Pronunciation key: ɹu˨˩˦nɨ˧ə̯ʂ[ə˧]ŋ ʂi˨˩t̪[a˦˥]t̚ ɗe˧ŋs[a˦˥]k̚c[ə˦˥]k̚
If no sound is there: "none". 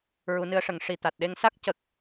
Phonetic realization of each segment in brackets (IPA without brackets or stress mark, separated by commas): ə˨˩˦, a˨˩, a˦˥, ə˨˩